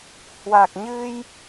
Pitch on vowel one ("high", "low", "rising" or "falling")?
low